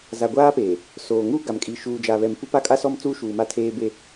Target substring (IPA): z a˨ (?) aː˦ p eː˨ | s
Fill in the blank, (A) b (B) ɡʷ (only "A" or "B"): B